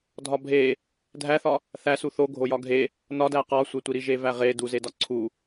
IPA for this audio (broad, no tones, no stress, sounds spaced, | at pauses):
dʱ ɒ bʱ e | dʱ æ θ ɒ | θ æ s u θ o ɡʱ o j ɒ ɡʱ e | n ɒ d æ q ɒ sʷ e tʷ i ɾ i ʒ e v æ ʁ e d u z e d ɒ ǀʰ u